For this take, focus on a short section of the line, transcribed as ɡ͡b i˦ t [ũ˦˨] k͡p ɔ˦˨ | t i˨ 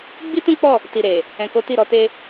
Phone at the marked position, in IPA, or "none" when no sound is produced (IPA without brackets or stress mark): ũ˦